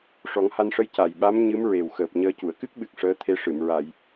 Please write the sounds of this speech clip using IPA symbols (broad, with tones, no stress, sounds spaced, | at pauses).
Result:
ʂ ɔ˨˩˦ ŋ h a˧ n ʂ ə˧˥ j c a˨˩ j ɓ a˧˥ m ɲ ɨ˧˥ m ɹ e˨˩ w x əː˨˩ p̚ ɲ əː˧ c u˨˩˨ ə̯ k ɨ˦˥ k̚ ɓ ɨ˨˩ k̚ ʂ əː˧˥ t̪ʰ e˧˥ ʂ ɨ˨˩˨ m ɹ a˨˩˨ j